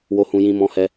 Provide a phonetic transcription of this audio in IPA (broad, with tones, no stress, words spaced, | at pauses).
wo˧hũ˧jĩ˧ mɔ̃˧hɛ˧